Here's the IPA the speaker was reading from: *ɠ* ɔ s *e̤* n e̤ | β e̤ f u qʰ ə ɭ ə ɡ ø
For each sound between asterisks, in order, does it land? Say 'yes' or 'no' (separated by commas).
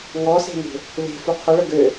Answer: no, yes